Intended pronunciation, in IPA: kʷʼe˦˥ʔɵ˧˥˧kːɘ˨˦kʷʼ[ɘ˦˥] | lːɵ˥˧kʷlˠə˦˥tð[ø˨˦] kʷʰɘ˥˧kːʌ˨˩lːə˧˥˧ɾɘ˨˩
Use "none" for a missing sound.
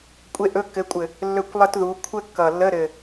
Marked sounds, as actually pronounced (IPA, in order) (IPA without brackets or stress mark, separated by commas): ɘ˨˩, u˨˦